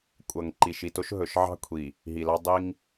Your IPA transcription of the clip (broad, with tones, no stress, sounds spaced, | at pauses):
kʷʼ ʌ˨ ŋ ǃ i˨ ʃ i˨ t o˦ ʃ ɦ ɵ˨ ʃ ʕ ɑ̤˦ kʷʰ i˨ | ɦ i˨ l ɑ˦ dˤ i˦ ŋ